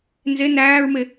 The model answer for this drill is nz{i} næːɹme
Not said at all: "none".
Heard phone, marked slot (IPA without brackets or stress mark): e